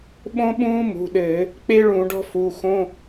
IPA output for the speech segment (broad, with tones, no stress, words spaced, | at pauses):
ɓõ˥ɓũː˥mṳ˩˧˩ɗɘː˧˩˧ | k͡pe˥ɭũ˧˩˧ɖɔ̤˥ fu˩˧˩xõ˧˥˧